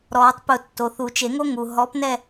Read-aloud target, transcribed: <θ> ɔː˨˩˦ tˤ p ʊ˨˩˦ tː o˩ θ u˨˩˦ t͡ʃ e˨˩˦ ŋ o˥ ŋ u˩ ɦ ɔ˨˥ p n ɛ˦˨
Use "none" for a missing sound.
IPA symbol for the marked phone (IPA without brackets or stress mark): ɾ